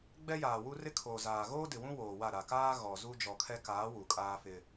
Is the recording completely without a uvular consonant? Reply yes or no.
yes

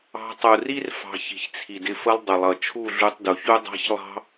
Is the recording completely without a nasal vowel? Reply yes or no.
yes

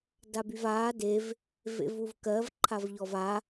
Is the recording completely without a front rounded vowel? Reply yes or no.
no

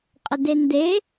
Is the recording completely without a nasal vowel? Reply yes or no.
yes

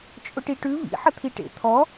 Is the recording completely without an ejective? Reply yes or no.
no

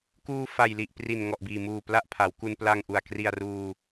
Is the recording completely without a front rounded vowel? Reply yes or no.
yes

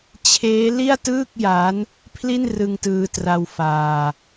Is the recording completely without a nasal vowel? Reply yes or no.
yes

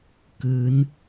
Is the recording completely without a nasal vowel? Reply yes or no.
yes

